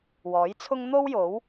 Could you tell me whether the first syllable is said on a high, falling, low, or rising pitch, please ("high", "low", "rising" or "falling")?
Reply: rising